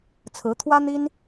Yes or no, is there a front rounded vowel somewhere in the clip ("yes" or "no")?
no